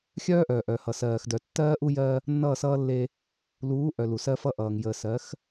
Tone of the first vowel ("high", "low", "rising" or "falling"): high